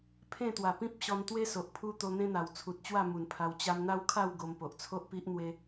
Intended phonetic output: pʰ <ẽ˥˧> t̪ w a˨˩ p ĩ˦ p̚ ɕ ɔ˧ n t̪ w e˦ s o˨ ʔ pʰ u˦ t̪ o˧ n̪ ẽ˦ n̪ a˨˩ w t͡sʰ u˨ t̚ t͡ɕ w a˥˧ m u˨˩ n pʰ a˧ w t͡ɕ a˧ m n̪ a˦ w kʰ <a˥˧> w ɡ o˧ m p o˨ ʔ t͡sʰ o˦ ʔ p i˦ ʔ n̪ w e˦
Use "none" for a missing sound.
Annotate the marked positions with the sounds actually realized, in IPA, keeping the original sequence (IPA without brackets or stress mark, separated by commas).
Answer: ẽ˥˧, a˥˧